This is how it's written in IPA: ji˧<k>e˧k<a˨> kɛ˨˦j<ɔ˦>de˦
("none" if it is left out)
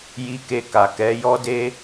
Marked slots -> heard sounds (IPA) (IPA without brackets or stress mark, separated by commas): k, a˨, ɔ˦